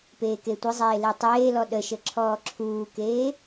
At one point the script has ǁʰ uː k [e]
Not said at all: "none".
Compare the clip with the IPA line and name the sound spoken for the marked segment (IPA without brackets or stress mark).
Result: eː